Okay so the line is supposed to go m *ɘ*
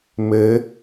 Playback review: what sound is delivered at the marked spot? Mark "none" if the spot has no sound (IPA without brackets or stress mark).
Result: ɘ